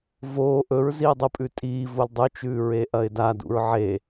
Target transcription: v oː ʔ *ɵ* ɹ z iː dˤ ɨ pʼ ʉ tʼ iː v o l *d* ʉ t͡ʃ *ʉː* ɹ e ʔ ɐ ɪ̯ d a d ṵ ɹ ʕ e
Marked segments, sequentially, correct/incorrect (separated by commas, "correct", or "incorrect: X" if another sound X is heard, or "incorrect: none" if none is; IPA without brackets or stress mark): correct, incorrect: dˤ, correct